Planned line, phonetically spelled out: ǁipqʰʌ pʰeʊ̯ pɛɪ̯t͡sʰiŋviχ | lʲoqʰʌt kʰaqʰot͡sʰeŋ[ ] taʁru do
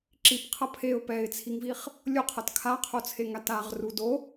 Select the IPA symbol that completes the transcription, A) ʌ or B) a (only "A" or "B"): B